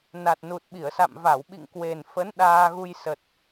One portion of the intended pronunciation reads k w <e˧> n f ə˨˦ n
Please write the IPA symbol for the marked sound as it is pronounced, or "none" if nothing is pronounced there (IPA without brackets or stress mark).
e˨˩